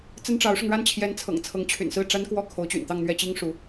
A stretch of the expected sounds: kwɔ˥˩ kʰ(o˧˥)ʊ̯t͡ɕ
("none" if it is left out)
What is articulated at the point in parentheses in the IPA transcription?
o˧˥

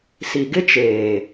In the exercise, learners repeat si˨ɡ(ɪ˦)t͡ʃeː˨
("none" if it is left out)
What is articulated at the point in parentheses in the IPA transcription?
ɪ˦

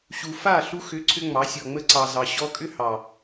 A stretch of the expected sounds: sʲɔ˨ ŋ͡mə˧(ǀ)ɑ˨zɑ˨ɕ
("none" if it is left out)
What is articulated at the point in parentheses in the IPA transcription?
ǀ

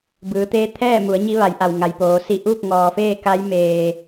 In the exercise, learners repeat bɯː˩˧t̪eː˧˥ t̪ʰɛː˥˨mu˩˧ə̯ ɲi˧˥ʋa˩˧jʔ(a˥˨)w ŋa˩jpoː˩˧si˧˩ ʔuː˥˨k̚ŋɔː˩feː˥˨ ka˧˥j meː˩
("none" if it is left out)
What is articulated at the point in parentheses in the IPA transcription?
a˩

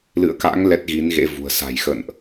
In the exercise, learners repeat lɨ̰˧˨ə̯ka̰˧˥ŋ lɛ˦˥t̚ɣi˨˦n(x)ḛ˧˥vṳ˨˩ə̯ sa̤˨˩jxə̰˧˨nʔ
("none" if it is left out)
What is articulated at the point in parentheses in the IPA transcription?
ɣ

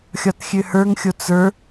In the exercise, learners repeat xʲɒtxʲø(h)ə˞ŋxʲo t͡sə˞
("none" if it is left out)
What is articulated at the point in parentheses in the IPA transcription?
h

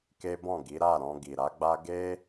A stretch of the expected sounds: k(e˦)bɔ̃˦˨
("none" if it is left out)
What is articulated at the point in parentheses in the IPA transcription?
e˦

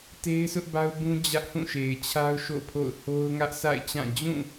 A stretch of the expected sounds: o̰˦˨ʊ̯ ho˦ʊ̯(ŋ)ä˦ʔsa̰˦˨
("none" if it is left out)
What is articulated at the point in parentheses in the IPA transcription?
ŋ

